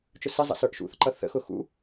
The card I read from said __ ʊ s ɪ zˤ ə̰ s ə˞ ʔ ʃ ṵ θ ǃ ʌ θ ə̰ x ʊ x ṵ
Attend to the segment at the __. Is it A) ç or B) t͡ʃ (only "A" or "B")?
B